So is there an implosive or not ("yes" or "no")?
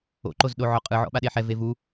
yes